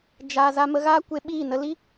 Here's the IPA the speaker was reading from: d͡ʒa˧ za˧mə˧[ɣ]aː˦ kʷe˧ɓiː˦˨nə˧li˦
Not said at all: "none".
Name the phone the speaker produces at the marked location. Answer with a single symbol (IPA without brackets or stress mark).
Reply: ɣ